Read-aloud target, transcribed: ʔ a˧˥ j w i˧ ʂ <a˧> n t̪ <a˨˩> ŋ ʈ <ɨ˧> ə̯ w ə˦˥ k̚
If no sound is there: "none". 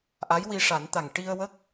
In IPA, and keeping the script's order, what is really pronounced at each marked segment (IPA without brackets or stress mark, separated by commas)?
a˨˩˦, a˨˩, i˧